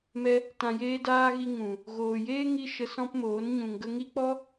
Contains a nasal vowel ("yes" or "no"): yes